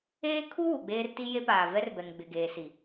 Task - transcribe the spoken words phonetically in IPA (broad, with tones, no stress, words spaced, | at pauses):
eː˦kʰu˦ wu˨ɡ͡beː˦rti˦je˦ paː˨vɛ˦rbɛ˨ŋ ɡ͡bɪ˨ɡeː˨si˨